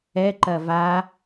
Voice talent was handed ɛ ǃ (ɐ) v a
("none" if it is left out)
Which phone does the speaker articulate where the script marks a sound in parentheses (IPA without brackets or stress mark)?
ɐ